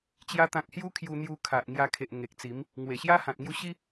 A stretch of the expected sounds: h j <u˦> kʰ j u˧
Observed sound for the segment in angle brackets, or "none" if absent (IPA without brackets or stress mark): u˦